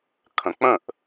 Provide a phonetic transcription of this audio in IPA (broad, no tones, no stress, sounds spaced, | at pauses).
kʰ ə̃ k͡p ə̃ ʔ